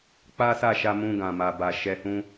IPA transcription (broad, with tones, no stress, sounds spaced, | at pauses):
k͡p a˦ s a˦˨ ʃ a˧ m ũ˧ ɡ ã˨ m a˨ b a˨ ʃ ɛ˧ h ũ˦